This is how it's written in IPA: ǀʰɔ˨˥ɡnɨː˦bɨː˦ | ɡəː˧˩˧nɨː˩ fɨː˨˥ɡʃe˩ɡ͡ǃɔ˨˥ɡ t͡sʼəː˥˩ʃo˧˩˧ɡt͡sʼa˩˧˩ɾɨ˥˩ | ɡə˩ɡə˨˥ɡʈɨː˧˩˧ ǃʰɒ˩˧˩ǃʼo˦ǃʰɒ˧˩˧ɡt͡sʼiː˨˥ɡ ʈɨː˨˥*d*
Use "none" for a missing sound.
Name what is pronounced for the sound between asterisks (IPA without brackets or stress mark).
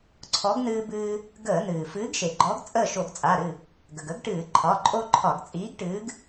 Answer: ɡ